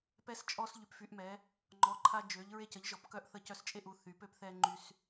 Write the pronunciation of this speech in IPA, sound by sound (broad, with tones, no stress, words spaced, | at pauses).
pɛ˧st͡ʃʼɔ˧s ʎy˩˧pfy˩˧ʔmɛ˩˧ | ŋ͡ǃɔ˩˧ǃʰa˧ d͡ʒø˩˧ʎ ɹe˧cə˩˧ʎʒɔ˩˧p kœ˧ʔθə˧ cœ˧st͡ʃʼe˧ʔu˩˧ θy˩˧pø˧pθɛ˧ ŋ͡ǃy˧s